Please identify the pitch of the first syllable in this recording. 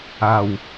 low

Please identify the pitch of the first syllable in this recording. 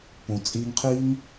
low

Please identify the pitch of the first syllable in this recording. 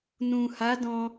low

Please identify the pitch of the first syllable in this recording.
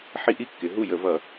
high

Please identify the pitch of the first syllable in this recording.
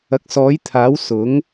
rising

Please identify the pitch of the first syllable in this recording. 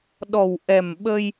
low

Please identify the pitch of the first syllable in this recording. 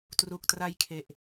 low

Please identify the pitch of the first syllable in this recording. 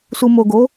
low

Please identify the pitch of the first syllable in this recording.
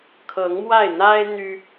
rising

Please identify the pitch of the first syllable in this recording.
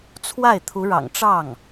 falling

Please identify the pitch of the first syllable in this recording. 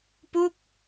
falling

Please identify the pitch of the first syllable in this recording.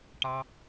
high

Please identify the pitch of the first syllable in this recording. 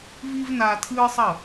high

